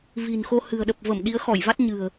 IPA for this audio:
v i̤˨˩ n x o˧ h ɨ̤˨˩ ə̯ ɗ ə˨˩ p̚ v ə˧˩ m ɗ i˨˦ ə̯ x ɔ˧˩ j v a˦˥ t̚ ɲ ɨ̤˨˩ ə̯

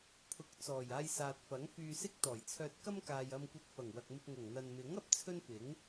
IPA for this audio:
pʰ ʊ˨˥ k̚ t͡s ɔː˨˩ j aː˧ j s aː˨ t̚ f ɐ˨˥ ŋ f yː˧ s ɪ˥ k̚ t̪ ɔː˨˩ j t͡sʰ œː˧ t̚ k ɐ˥ m k aː˨ j ɐ˧ m kʷ ɐ˧ t̚ f ɐ˨˩ ŋ w ɐ˨ k̚ m ɪ˧ k̚ ŋ ʊ˨˩ ŋ n̪ ɐ˨ n m ɪ˨˥ ŋ ɐ˨ p̚ t͡sʰ ɵ˥ n f ɪ˨˥ ŋ

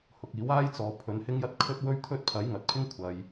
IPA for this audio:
h ʊ˨ k̚ iː˨˥ w aː˥ j t͡s ɔː˨ pʰ ɵ˨˧ n h ɪ˥ ŋ j ɐ˥ t̚ kʰ ɵ˥ t̚ w ɵ˥ ɥ t̪ʰ ɵ˥ t̚ pʰ ɐ˨˥ j ŋ ɐ˨ t̚ pʰ ɪ˥ ŋ kʷʰ ɐ˨ j

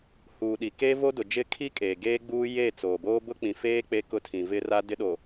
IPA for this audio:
h uː˨ ɗ i˨ k e˦ v o˦ d ʊ˨ d͡ʒ ɪ˦ kʰ i˦ kʼ eː˨ ɡ eː˦ ɡ͡b uː˦ j e˦˨ t͡s oː˨ b oː˦ b ʊ˦ k͡p ĩ˨ f eː˦ k͡p e˦ k ʊ˦ tʰ ĩ˨ v ɪ˦ r a˦ d ɪ˦ ɗ o˨

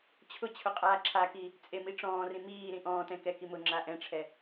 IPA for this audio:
t͡ɕʰ ʊ t͡ɕʰ ʊ qʼ aː ǁʰ a k iː | t͡sʼ e m i ʈ͡ʂ ɔ̃ː r ĩ m iː ɾ ĩ ʔ ɔ̃ː t ɛ̃ k ɛ k i m ʊ ŋ͡ǁ a ʔ ɛ̃ ʈ͡ʂʰ ɛ

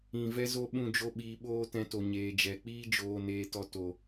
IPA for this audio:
ĩ˨ v ɛ˧ z o˧ ɓ ũ˦˨ d͡ʒ o˦ ɓ iː˧ ɓ oː˦ t ɛ̃˧ t o˨ ɲ eː˨ d͡ʒ ɛ˨ k͡p iː˦ d͡ʒ oː˧ n eː˧ t ɔ˧ t o˨

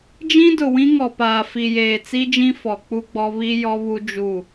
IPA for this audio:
d͡ʒ ĩ˦ d ʊ˨ w ĩ˦ ŋ ɔ˨ p aː˨ f i˨ j eː˨ t͡s i˦ d͡ʒ ĩ˦ f ɔ˨ k͡p u˦ ɡ͡b ɔ˦ β i˦ j ɔ˦ β u˦ d͡ʒ u˦˨

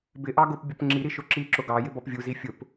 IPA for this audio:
b ɪ ʔ ɑ ɡ ʊ p bʲ ʊ p ŋ͡ǁ i ɾ i ʃ ʊ ǁ i ǁ ʊ ɡ ɑ j ɪ b ɔ p vʲ u z i fʲ ʊ p

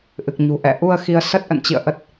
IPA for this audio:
ʔ ɨ˨˩ k̚ ɲ ṳ˨˩ ʔ ɛ̰˧˨ ʔ u˧ ə̯ x i˨˦ ə̯ s ə˦˥ t̚ ʔ ə̰˧˨ n t͡ɕ ḭ˧˨ ə̯ ʔ ə˦˥ t̚

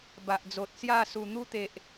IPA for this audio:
b a˨ ʔ d͡z o˨ t̚ s j a˥˧ s u˨˩ n̪ u˦ t̪ e˨ ʔ

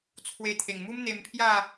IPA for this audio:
t͡sʰ w e˧ t̪ʰ e˨˩ ŋ m u˦ m n̪ e˧ m pʰ j a˥˧

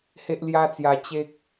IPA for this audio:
h e˦ ʔ l j a˦ t͡s j a˧ t͡ɕ e˦ k̚

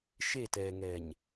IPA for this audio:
ʃ e t ɛː ŋ ɛː ɲ

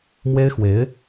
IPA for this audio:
m w e˥ ɪ̯ x w e˧˥ ɪ̯

